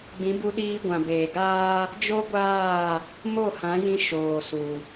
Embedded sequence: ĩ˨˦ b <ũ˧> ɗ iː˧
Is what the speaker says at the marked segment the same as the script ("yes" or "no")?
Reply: no